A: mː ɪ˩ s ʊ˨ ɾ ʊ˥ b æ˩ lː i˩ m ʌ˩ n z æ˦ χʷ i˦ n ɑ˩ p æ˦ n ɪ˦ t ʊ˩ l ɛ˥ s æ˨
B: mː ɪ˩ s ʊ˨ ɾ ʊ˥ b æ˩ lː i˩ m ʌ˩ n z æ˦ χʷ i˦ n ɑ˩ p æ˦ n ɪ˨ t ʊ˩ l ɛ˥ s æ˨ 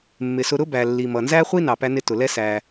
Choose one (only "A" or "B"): A